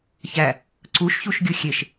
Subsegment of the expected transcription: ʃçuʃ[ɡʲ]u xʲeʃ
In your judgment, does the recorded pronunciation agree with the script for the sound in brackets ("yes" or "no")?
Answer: yes